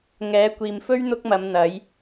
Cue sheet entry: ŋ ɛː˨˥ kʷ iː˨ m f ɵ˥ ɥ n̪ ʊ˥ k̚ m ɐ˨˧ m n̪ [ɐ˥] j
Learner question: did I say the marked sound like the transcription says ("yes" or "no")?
no